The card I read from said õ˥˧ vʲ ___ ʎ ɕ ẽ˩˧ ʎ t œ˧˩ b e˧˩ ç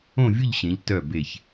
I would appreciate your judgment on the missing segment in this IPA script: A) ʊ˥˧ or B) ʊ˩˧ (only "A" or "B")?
A